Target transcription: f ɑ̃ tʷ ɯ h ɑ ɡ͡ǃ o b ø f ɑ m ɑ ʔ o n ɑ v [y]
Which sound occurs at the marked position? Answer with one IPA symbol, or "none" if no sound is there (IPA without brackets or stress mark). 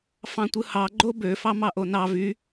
y